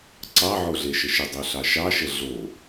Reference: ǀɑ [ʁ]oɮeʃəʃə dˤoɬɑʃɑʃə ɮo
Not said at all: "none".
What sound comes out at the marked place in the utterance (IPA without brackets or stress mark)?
ʕ